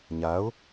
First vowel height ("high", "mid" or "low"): low